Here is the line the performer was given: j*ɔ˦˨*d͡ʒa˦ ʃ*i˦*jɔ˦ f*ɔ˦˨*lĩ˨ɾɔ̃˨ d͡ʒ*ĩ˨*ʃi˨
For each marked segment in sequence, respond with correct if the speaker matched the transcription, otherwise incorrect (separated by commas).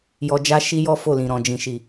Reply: incorrect, correct, incorrect, correct